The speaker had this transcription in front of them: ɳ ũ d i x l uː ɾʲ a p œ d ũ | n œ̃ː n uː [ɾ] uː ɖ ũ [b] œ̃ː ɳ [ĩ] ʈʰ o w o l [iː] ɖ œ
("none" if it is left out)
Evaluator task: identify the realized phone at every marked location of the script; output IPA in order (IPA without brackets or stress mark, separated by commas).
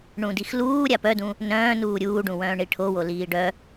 ɾʲ, w, i, iː